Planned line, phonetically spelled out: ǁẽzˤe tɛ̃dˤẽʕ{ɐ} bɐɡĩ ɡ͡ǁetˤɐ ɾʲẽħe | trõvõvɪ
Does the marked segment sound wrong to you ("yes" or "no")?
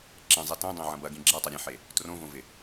yes